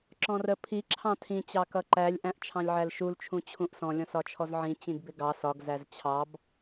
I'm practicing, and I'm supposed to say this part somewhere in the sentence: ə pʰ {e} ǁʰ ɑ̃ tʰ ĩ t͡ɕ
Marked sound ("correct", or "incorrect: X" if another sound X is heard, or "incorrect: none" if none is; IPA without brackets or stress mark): incorrect: i